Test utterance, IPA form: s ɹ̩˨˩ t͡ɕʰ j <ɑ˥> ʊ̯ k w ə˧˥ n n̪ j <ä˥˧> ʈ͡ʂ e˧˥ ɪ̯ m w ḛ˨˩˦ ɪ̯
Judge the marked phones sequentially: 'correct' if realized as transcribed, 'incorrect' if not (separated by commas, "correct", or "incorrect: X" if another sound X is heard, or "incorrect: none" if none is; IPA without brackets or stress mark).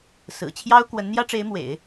correct, incorrect: ä˥